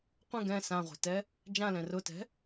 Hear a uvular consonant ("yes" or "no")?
yes